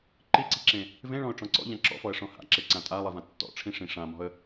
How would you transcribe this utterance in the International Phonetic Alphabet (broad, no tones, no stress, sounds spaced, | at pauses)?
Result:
ǃ i ǀ i̤ ǁ ẽ | v ẽ ɭ ɔ̃ ʊ̯ ʈ͡ʂ ɔ̃ ǀ ɔ̰ ʎ ã ǁ ɔ̰ f ɔ ə̯ ʂ ɔ̃ h a̰ ǁ e ǀ ã tʼ a lˠ i v ã tː ɔ̰ ʈ͡ʂʰ ĩ ʂ ĩ ʂ ã m ɔ̤ ə̯